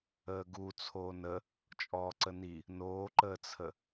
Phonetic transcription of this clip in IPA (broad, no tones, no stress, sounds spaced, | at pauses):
əː ɡ u t͡sʰ oː n ə | t͡ʃʼ ɔː ǀ ə n i | n oː ǃ əː t͡sʰ ə